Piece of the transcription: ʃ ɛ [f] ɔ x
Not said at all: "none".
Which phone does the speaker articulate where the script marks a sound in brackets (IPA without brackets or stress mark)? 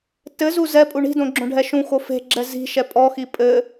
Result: pʼ